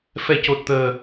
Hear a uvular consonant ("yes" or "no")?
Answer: no